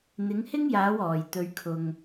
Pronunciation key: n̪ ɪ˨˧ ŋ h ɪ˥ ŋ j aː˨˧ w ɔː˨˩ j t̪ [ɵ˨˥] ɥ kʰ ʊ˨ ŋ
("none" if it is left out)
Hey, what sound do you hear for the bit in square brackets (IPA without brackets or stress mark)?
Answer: ɵ˧